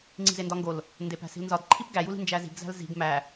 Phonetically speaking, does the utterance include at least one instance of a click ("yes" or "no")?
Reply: yes